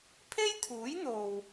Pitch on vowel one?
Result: high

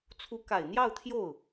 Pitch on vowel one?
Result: rising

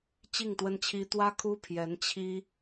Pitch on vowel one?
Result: falling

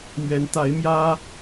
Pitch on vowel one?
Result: rising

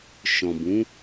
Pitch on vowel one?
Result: low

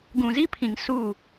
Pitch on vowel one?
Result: low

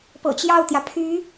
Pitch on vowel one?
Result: low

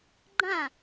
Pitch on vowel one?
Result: falling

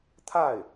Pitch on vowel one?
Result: falling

